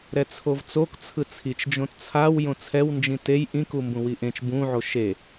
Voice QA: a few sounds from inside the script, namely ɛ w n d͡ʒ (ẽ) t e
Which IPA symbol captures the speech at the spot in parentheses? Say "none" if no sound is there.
ĩ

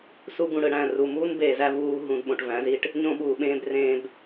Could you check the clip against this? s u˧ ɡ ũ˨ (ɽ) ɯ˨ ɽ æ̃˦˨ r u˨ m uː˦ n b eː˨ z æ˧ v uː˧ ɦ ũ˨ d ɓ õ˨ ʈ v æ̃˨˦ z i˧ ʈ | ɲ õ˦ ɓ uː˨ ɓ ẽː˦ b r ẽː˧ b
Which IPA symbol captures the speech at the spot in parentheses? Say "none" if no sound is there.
ɽ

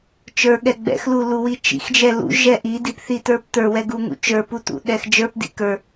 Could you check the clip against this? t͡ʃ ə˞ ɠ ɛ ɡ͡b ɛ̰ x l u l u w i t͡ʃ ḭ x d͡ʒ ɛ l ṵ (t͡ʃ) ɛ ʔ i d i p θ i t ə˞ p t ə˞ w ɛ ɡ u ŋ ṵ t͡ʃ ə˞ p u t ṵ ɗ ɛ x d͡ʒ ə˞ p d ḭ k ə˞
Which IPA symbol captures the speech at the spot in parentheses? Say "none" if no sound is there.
ʒ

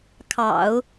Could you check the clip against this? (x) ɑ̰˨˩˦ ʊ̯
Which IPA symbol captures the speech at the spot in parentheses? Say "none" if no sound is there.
kʰ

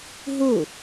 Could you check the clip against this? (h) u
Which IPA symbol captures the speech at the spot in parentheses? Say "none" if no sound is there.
ɦ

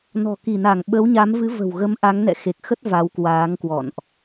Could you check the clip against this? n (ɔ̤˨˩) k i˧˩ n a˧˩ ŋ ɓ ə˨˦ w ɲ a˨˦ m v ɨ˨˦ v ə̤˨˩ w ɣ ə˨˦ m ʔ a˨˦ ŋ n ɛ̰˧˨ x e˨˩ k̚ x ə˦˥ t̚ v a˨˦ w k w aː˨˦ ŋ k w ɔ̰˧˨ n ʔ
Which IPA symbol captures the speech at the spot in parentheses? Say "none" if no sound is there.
ɔ̤˨˩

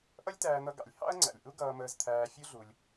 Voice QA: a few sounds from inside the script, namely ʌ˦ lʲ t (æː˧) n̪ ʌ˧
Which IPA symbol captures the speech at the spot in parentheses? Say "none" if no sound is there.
æː˧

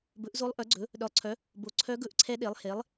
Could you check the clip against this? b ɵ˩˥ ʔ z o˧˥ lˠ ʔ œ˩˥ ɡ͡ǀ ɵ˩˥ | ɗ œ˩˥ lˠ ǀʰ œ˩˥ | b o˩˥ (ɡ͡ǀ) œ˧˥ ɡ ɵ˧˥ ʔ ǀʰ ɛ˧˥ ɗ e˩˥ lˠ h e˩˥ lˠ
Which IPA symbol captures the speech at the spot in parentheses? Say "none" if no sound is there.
ǀʰ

